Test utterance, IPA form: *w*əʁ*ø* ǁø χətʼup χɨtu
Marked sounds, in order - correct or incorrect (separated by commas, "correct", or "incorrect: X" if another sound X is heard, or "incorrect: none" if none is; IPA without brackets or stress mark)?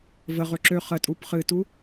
incorrect: v, correct